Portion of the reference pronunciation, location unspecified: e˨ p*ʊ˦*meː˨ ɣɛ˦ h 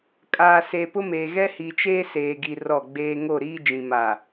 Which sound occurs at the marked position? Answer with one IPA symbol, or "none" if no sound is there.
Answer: ʊ˦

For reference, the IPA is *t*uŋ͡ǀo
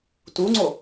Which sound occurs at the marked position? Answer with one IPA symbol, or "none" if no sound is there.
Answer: t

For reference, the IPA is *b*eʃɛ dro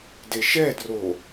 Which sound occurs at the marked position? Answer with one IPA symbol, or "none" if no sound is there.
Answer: d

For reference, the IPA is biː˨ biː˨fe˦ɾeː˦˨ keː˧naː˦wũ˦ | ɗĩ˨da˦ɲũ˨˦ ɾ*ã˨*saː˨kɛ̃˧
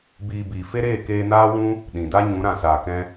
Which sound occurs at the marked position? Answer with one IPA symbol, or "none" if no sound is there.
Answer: ã˨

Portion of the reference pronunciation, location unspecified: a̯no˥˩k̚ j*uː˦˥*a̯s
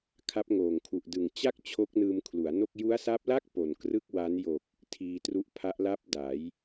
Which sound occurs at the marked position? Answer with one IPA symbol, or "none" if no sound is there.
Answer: u˦˥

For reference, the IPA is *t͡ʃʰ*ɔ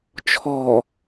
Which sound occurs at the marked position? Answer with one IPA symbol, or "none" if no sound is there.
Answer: t͡ʃʰ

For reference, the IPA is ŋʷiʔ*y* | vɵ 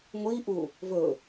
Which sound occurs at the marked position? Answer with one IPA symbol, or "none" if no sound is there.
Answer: u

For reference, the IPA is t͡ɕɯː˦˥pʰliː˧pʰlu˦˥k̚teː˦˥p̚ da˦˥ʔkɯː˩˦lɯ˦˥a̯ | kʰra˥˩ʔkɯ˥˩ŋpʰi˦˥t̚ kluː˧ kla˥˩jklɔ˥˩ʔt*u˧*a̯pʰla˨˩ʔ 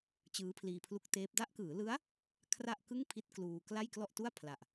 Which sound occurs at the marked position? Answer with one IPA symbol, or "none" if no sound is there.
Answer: u˥˩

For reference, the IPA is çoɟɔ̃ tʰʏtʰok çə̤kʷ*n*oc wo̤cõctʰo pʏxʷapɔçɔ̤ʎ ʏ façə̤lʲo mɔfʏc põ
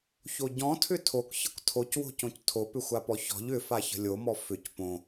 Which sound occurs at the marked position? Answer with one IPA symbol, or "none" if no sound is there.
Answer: tʰ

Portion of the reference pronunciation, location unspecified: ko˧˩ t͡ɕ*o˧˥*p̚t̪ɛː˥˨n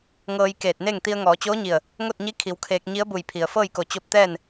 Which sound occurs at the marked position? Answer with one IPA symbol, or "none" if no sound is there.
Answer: o˧˥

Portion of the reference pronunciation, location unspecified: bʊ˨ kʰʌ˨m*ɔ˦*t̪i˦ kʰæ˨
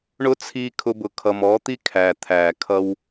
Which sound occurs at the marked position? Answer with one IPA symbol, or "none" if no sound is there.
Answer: ɔ˨˦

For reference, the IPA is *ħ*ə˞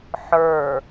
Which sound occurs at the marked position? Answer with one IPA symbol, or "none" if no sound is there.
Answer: ħ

